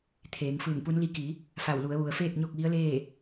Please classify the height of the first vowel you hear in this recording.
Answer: mid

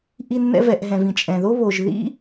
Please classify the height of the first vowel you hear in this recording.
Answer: high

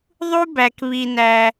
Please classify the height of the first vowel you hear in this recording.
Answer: high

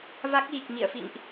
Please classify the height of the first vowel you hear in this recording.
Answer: low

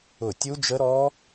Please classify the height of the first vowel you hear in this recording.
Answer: high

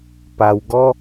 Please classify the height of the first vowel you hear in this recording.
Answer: low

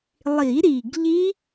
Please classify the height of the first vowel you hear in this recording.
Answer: high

